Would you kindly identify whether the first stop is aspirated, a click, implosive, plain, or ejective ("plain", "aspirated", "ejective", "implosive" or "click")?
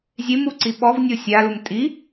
click